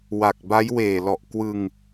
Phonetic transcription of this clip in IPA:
w a˨˩ k̚ b a˦˥ j w eː˨˩ l ɔ˨˩ ʔ k w ɯ˧ ŋ

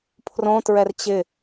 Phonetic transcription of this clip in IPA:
pʰ r õ t ɹ ɛ r t͡ɕ ɪ

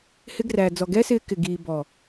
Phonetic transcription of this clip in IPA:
h ɪ˧ ɡ r æː˨ d͡z ɔ˨ ɡ ɛ˦ s ɪː˧ k ɪ˨ ɡ iː˨ b ɔ˨

